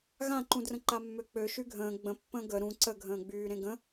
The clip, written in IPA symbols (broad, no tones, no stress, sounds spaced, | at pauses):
ɣ ã ǃ ũ d r ə̃ ǃ a mː ø k͡p ø ʃ y ɡʱ ə̃ː ɡ͡b ə̃ pː ə̃ː ɡ ə ɾ ũ ǀ ə ɡʱ ə̃ː ɡ͡b yː ɾ ẽ ɡ ə̃